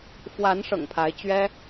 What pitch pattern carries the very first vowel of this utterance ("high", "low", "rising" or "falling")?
rising